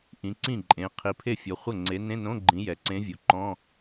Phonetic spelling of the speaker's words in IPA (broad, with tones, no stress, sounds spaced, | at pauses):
ʔ ĩ˨˦ ǀ ĩ˥˩ ǃʼ ẽ˨˦ qʰ i˨˦ pʰ e˥˩ fʲ ɔ˨˦ χʷ ə˥˩ ŋ͡ǀ e˨˦ n ẽ˧˥˧ n õ˧˥˧ ɡ͡ǃ ĩ˨˦ j ɛ˩ ǀ ẽ˨˦ vʲ o˩ ǃ ɔ̃˧˥˧